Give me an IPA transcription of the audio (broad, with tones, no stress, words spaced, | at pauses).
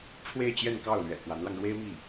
ʈ͡ʂʰwe˥˧ɪ̯t͡ɕjɛ˥˧nkɑ˥˩ʊ̯ lɥɛ̰˨˩ kwa˧˥nlɑ˧ŋ ɻwe˥ɪ̯ mi˥˩